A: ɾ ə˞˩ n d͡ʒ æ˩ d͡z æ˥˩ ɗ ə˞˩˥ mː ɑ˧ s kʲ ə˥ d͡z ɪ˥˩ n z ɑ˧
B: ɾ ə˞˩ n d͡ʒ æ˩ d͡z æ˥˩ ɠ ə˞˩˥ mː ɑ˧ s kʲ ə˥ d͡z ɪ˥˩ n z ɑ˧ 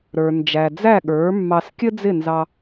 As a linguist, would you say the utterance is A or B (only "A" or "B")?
B